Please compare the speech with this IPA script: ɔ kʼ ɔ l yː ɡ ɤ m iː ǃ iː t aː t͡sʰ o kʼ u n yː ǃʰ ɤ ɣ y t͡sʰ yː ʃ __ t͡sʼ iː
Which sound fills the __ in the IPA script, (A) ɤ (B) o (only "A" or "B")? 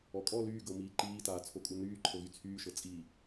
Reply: A